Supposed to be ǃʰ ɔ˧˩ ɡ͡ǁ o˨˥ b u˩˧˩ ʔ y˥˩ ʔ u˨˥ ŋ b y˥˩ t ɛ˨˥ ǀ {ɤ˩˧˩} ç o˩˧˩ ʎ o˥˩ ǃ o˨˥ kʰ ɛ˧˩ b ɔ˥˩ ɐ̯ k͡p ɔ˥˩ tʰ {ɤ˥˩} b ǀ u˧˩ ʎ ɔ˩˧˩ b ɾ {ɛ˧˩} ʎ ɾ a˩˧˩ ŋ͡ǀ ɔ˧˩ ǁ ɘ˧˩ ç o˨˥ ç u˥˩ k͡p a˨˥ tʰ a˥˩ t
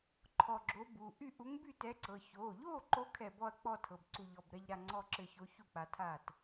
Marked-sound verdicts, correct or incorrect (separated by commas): correct, incorrect, correct